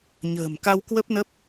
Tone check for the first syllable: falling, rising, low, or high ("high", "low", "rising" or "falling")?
low